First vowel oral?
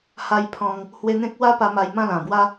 yes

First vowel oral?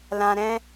no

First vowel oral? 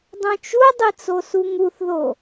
no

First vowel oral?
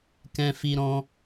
no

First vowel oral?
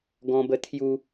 no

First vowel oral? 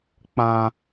no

